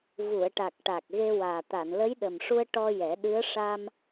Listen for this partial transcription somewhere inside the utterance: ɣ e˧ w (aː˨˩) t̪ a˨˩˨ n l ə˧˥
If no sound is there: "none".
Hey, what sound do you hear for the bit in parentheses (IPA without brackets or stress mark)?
aː˨˩